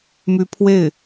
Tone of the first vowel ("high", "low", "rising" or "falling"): rising